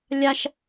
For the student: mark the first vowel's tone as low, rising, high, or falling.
high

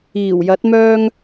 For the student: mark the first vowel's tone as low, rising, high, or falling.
low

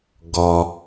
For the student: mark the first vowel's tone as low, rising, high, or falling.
low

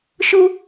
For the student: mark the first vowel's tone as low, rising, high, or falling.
high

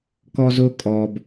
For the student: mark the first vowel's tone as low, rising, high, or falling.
high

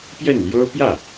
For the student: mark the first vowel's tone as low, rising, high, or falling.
falling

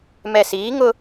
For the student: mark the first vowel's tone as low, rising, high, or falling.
low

